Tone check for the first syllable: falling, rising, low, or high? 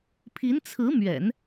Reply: rising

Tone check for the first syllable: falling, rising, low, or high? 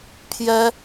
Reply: high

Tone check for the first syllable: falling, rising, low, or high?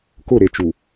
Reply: falling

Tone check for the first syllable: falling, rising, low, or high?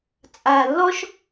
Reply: low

